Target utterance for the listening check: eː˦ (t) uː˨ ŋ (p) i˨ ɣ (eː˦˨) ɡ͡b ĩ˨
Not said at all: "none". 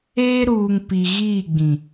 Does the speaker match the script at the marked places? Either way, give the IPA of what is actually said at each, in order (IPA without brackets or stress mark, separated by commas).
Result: ɾ, p, iː˦˨